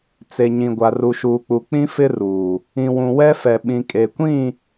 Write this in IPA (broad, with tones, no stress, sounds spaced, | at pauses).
t͡s e˨ ɲ ĩ˨ ɡʷ a˨ r u˨ ʃ uː˨ k͡p u˨ k͡p ĩ˦ f ɪ˦ r uː˨ | ĩ˨ w ũ˨ w ɛ˦ f ɛ˨ ɓ ĩ˨ kʼ e˨ kʷ ĩ˦˨